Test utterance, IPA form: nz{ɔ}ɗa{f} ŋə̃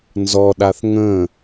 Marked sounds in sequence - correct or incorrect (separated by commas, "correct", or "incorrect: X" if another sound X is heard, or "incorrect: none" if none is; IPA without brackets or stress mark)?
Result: correct, incorrect: θ